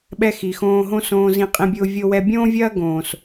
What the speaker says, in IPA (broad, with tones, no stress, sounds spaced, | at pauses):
ɓ ɛ˧ x i˨ x õː˧ ɦ õ˦ s õː˧ z ĩ˧ qʼ ĩ˧ bʲ ʊː˧ vʲ o˧ w ɛ˧ bʲ õː˦ vʲ ɐː˦ ɡ õː˨ s